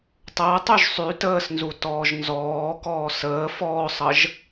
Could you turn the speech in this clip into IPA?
tˤəːtˤyʒ sˤy təːsnzu tɔːʒnzɔːkɔː səː fɔːsˤəʒ

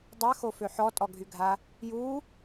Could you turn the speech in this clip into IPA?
dˤɛxofø ħɔtʼɔɡʱyɡʱa | ju

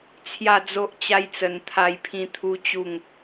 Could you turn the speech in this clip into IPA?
t͡sʰja˥˧d͡zo˦ʔt͡ɕa˦jt͡sə˧n t̪ʰa˥˧jpʰĩ˦t̪ʰu˦t͡ɕu˥˧ŋ

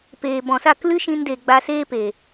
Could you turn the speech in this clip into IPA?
peː˨bɔ̃˨sa˦˨k lɨ˦ʃĩ˧nde˨ ɡ͡ba˧seː˦pe˨

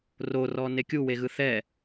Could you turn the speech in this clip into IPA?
rorɔ nekʲuweɣɯ θɛ

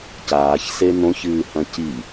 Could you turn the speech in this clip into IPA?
caːçse n̪õçɨːhɐ̃ ci

